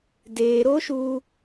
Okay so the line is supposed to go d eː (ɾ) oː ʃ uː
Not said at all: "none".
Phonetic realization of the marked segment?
ɾ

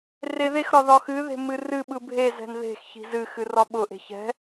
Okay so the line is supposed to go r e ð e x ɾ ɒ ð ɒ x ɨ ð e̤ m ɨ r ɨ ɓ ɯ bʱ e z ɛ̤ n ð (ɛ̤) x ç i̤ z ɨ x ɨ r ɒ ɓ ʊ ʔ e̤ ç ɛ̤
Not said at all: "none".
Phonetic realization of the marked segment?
e̤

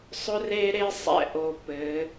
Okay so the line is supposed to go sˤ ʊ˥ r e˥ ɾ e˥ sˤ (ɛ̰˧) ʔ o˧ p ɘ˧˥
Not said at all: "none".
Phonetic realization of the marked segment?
ɛ̰˧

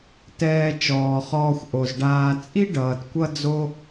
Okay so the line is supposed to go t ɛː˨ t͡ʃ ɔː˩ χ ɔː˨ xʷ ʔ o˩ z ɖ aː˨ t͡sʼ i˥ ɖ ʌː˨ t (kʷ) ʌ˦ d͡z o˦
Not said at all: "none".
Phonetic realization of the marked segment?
kʷ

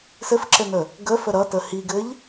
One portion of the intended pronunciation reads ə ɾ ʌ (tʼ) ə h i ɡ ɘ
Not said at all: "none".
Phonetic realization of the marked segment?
t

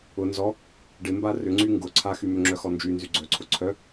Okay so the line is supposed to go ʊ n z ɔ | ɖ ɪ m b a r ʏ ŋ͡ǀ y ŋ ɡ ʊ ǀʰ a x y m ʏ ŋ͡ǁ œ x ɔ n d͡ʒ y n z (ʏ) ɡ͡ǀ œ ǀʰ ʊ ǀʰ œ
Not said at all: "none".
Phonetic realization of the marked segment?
y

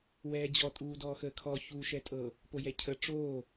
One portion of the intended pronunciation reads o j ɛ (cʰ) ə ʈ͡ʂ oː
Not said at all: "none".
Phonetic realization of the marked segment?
cʰ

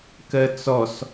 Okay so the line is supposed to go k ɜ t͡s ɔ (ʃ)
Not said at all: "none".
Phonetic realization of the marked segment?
s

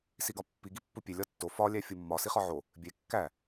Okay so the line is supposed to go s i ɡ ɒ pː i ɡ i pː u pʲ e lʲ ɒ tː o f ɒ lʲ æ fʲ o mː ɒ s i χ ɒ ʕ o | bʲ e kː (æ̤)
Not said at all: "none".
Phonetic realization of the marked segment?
æ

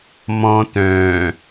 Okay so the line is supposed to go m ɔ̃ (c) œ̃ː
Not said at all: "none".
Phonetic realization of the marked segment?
t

